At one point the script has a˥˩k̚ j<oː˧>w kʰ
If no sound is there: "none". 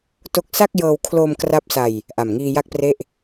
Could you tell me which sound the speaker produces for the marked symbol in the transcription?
ɤː˧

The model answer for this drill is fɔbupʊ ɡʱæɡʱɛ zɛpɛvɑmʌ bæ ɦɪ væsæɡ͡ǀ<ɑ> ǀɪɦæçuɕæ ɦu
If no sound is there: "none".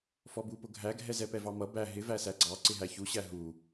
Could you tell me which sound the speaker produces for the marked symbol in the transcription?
ɑ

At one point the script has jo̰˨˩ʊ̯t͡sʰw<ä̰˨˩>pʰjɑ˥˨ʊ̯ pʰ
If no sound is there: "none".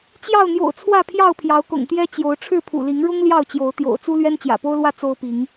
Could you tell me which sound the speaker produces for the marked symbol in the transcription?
ä˥˨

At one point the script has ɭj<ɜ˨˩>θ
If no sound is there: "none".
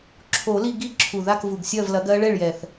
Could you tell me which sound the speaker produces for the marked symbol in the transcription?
ɛ˨˩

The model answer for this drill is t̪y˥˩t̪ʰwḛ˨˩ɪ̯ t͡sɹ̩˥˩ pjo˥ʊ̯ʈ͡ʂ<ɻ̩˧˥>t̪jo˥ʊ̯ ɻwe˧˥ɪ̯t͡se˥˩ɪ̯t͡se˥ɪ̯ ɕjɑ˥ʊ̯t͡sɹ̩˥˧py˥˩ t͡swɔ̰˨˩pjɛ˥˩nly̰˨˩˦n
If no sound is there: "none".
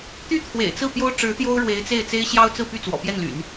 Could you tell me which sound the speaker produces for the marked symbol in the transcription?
ɻ̩˧˥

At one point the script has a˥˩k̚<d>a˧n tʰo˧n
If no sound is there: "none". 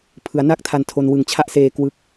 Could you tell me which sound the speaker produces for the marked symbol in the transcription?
tʰ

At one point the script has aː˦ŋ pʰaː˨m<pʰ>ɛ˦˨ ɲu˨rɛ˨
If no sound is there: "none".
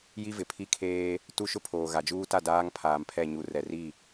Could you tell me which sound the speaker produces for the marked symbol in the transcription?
pʰ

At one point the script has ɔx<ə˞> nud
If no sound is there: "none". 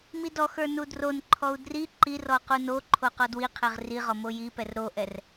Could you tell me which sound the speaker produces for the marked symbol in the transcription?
ə˞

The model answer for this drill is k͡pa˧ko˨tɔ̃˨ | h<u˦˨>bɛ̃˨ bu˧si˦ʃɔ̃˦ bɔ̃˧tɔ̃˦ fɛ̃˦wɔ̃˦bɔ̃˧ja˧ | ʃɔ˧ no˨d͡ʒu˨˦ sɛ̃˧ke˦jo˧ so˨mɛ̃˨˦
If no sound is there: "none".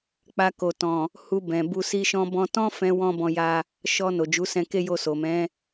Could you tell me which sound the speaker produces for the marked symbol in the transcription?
u˧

